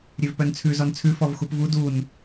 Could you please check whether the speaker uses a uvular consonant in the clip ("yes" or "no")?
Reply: no